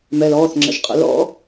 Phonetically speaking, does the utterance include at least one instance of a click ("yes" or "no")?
yes